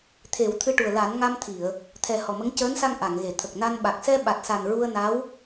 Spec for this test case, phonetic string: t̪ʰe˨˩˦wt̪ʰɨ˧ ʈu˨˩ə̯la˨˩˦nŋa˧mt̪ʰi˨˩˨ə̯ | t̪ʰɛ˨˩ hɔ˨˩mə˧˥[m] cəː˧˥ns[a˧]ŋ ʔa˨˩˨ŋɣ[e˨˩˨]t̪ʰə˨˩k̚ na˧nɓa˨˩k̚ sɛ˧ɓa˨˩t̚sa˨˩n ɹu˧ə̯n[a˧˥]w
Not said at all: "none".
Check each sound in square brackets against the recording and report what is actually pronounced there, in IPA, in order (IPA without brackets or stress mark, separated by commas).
ŋ, a˧, e˨˩˨, a˧˥